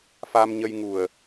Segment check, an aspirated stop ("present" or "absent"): absent